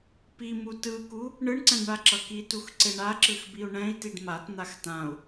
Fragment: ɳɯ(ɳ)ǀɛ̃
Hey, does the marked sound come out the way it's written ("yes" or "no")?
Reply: yes